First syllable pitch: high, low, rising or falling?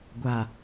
low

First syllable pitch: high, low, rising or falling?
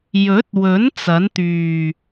rising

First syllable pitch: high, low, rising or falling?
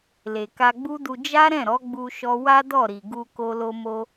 low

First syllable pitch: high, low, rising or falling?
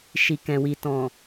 low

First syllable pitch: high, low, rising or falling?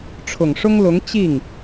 low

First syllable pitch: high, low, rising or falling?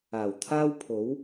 low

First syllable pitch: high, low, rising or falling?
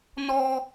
high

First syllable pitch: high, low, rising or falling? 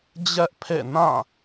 high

